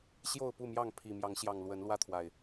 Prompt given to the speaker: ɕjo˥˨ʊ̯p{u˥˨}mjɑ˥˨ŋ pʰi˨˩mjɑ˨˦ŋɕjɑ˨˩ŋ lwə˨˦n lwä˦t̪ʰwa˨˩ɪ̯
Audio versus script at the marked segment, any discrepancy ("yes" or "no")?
no